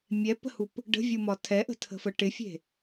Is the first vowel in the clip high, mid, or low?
mid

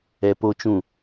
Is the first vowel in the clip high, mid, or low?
mid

